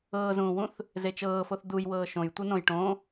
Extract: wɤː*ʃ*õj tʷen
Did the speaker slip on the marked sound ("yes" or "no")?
no